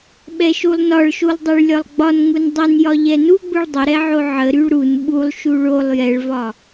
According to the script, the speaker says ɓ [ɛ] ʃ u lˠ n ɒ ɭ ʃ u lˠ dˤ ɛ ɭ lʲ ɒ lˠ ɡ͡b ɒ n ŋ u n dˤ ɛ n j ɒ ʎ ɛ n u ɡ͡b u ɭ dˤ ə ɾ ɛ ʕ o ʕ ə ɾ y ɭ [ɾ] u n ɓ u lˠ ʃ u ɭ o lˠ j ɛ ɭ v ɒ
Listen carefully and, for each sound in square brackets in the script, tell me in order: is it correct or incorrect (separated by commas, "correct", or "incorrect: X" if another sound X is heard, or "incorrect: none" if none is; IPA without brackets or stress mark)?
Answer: correct, correct